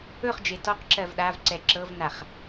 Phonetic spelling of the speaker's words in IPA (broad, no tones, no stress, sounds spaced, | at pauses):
ɵ χ d͡ʒ e t ɔ q ǁ ɜ v ɗ a v ǀ ɛ ǁ ɤ v n a χ